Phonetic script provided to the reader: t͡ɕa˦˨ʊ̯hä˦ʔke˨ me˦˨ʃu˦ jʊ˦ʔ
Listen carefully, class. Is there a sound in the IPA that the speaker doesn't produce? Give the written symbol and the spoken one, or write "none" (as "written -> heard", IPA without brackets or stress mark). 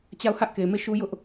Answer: none